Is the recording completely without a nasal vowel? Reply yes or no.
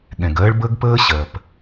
no